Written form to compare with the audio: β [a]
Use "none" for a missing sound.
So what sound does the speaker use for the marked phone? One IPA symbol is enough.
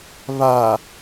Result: a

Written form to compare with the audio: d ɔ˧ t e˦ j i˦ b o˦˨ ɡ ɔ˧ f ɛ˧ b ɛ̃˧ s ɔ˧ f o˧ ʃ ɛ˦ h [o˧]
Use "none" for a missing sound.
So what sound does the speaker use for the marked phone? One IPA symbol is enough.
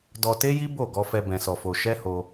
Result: o˧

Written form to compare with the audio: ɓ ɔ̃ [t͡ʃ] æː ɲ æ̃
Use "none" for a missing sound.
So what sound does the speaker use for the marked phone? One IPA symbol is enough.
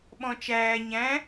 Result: t͡ʃ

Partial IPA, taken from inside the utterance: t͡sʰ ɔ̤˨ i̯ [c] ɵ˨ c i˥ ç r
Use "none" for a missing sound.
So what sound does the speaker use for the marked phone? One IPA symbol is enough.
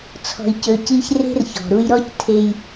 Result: c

